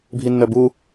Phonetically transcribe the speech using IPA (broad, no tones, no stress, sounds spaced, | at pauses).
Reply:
bʱ i nː œ b u